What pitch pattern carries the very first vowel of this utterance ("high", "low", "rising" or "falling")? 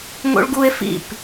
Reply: high